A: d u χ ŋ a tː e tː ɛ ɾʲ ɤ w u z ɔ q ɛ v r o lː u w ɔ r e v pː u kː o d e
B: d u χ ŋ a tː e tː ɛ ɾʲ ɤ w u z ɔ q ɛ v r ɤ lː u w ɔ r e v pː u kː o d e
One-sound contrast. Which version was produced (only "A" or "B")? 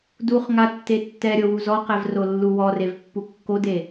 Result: A